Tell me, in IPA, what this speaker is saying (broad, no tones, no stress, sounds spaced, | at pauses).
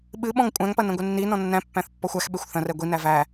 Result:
ɓ ɨ ɓ ɔ̃ ŋ kʷʼ æ̃ ŋ p ɐ n ɐ̃ ɡʷ ɛ nː i n ɔ̃ nː æ̃ pː æ̃ θ pː ɔ xʷ æ x ɓ e xʷ θ ɐ̃ r ɛ ɡʷ i n æ v æ